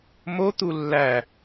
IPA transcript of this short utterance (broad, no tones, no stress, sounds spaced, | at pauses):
m o t̪ u lː æ